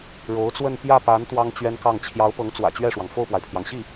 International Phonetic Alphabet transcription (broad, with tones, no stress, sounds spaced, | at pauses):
ɻ o˧˥ ʊ̯ t͡s w ə˥˧ n p j ä˥˩ p a˧˥ n t̪ w ɑ˥ ŋ t͡ɕ ɥ ɛ˥ n k ɑ˥˩ ŋ t͡ɕʰ j ɑ˧˥ ʊ̯ p ɤ˧˥ ŋ t͡s w ä̰˨˩ t͡ɕ ɥ ɛ˥˩ ʂ w ɑ˩ ŋ f o˥˩ ʊ̯ p w a˩ ɪ̯ pʰ j ɑ˩ ŋ ɕ i˥˩